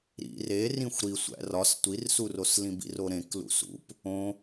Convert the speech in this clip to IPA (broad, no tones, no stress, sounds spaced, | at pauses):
ɾ ḭ r e r ĩ xʷ ɾ i sʷ æ̰ r ɒ s tʷ i r s u r o s l ĩ b ḭ r o ɾ ẽ k l ṵ s ṵ p | õ